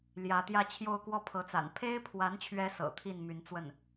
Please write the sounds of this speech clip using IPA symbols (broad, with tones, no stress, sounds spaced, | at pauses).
l j ä˧˥ t̪ j ä˥˧ t͡ɕʰ j o˥˧ ʊ̯ k w ɔ˥˩ pʰ ɤ˧˥ t͡s a̰˨˩ n pʰ e˥ ɪ̯ pʰ w a˧˥ n t͡ɕʰ ɥ ɛ˧˥ s ɤ̰˨˩ t̪ʰ i˥˩ n m y˧˥ n t͡s w ə˥˩ n